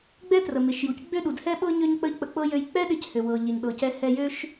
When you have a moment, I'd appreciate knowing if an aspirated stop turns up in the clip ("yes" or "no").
no